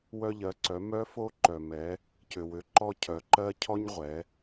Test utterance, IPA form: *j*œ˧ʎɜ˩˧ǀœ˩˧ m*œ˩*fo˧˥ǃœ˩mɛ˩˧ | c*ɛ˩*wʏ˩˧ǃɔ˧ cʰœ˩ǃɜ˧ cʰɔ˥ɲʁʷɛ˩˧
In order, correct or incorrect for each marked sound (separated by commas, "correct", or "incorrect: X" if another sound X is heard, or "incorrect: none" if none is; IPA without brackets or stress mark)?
incorrect: w, incorrect: œ˧˥, incorrect: ʏ˩